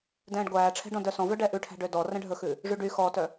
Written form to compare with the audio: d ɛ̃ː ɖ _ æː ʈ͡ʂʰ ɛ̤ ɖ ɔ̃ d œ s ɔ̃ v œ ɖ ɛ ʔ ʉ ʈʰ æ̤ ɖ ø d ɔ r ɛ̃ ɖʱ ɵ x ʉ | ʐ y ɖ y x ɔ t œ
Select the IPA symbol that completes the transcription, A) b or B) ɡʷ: B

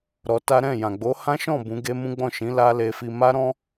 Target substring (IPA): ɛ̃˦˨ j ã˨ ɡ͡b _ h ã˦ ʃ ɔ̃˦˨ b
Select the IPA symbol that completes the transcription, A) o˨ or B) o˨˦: B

